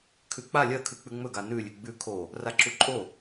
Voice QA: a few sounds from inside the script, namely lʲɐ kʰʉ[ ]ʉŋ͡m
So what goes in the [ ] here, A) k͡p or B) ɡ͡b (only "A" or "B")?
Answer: A